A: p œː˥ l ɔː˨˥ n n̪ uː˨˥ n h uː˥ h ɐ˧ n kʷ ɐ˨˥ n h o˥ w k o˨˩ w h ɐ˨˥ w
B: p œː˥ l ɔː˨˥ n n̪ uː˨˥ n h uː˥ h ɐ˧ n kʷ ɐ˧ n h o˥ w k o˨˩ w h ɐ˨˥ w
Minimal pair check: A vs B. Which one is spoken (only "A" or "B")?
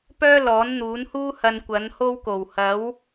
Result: A